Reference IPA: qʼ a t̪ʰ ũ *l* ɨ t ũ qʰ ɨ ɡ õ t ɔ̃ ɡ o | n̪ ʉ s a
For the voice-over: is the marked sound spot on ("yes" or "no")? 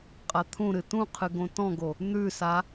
no